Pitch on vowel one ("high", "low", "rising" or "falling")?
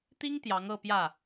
high